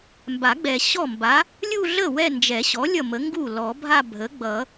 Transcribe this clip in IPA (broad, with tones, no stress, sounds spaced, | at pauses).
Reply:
m b a˨˩˦ ɡ͡b ɛ˨ ɕ ɔ˥˩ m b a˩˥ | lʲ u˥˧ ɮ ə˥˩ w ɛ˥˧ n d͡ʒ ɛ˨˩˦ ɕ ɔ˩˥ lʲ ʌ˥˩ m ə˩˥ ŋ ɡ u˥˩ l ɔ˨˩˦ bʱ a˥˧ bʱ ə˩˥ ɡ͡b ʌ˨˩˦